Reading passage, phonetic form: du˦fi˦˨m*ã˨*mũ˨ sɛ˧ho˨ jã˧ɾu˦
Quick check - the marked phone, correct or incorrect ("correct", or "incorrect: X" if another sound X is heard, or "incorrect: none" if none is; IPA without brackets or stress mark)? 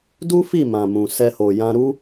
correct